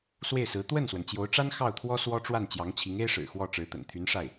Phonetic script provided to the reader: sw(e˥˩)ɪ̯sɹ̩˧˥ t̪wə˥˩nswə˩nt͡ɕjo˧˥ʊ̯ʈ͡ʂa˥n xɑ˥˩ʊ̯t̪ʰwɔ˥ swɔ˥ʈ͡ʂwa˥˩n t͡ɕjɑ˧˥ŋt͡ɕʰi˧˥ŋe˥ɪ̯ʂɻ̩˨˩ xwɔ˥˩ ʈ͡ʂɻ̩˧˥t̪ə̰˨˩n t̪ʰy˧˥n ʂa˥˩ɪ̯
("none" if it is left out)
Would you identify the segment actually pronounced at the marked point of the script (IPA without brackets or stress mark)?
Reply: e˥˩